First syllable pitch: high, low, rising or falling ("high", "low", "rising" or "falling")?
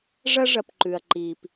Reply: high